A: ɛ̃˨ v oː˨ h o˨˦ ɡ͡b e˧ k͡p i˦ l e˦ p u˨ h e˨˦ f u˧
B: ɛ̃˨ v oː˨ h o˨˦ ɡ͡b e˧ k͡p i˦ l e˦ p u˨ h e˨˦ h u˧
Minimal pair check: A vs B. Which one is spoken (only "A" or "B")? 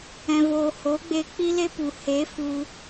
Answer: A